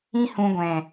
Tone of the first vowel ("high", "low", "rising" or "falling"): high